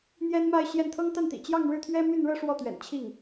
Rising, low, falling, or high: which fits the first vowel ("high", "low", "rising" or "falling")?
high